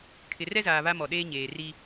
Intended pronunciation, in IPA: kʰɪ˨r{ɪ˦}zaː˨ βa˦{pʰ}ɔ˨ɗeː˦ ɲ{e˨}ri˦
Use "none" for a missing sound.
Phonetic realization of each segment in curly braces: ɛ˦, m, eː˨

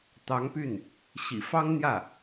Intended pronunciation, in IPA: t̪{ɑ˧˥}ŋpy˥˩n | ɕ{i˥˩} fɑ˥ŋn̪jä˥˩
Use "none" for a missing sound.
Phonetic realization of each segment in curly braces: ɑ˧˥, ḭ˨˩

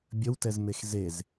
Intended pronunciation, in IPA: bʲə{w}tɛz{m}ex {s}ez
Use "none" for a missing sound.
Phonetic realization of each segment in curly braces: w, m, z

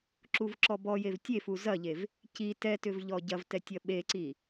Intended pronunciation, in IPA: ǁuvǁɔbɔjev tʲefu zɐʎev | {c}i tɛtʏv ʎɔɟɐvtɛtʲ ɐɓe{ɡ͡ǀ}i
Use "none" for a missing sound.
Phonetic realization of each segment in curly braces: c, ǀ

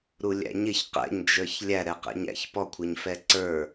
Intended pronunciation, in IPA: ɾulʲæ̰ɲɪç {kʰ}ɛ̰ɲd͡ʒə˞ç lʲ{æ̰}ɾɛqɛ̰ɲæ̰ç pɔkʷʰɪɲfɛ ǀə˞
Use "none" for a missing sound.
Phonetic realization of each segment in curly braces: q, æ

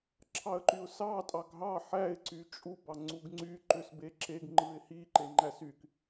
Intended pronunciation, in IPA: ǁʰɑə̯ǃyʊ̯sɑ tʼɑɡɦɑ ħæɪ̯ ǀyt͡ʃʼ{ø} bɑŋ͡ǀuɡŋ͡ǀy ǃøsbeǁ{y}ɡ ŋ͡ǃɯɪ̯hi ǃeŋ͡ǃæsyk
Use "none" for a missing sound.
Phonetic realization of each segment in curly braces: u, e

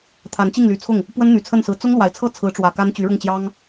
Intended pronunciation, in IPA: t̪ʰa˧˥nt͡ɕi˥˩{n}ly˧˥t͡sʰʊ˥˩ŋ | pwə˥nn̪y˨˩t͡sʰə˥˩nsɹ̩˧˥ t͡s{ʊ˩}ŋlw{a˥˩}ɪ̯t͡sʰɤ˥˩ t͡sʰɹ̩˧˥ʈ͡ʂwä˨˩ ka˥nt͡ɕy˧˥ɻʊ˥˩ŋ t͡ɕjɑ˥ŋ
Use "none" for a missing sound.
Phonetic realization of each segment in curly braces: ŋ, ʊ˥, a˨˩

